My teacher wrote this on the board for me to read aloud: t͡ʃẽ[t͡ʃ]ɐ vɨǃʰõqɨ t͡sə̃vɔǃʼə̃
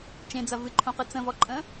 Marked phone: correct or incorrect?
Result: incorrect